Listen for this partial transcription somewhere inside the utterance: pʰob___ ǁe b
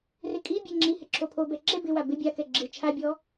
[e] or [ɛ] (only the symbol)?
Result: ɛ